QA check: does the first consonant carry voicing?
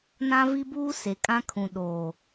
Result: yes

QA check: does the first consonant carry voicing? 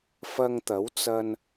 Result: no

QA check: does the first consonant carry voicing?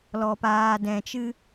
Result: yes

